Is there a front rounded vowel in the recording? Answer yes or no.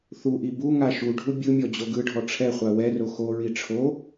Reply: no